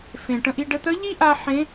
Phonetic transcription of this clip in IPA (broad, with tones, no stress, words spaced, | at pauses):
fẽ˩ʈə̃˧ʔi˧ ɖə˧t̪ə˧˥ ʎi˥ʔa˧ ħẽ˧˥